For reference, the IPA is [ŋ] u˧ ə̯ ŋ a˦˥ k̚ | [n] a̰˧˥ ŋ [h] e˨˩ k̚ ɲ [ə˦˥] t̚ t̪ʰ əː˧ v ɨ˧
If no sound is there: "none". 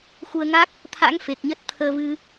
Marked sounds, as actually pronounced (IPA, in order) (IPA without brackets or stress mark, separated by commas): x, t̪ʰ, f, ə˦˥